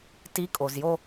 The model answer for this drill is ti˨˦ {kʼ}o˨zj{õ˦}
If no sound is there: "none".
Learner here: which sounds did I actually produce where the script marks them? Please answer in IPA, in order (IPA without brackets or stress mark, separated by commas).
kʼ, o˦